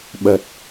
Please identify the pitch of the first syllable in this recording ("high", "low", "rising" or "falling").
low